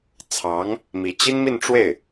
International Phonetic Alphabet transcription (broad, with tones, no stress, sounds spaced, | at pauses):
t͡sʰ ɑ˧˥ ŋ | m i˧˥ t͡ɕ i˥ n m i˥˧ n ʈ͡ʂ w e˥˩ ɪ̯